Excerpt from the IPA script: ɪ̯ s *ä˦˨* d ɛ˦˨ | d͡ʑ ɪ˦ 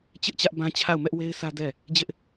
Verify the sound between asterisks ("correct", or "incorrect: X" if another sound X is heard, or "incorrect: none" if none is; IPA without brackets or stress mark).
incorrect: ä˦